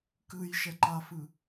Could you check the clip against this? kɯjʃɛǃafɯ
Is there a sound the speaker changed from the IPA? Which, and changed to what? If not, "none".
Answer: none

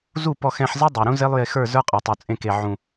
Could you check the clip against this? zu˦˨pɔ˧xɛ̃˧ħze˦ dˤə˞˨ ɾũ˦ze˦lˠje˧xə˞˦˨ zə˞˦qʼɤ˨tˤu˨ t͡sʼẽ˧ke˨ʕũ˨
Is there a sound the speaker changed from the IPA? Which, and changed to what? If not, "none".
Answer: none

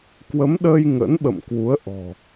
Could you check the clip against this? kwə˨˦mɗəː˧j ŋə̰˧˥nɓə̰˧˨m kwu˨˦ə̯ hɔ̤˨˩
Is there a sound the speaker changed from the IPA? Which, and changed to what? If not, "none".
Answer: h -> ʔ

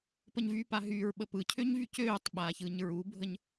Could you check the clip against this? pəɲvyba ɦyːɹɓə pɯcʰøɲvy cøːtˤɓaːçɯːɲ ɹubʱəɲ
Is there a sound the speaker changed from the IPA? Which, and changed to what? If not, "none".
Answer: b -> p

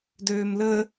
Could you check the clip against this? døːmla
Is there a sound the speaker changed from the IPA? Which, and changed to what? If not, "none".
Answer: a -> ə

